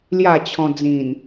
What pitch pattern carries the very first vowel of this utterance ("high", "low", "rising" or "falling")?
falling